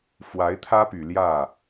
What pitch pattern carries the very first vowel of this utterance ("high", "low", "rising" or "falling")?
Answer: rising